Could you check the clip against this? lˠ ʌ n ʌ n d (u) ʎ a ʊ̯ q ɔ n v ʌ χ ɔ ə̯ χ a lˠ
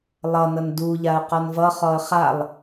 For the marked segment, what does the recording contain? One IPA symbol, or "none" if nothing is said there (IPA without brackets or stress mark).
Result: u